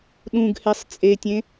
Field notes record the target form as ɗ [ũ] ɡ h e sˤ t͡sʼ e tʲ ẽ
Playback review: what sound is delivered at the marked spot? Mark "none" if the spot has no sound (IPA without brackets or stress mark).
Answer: ũ